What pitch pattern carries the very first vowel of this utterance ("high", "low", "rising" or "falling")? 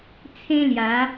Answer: high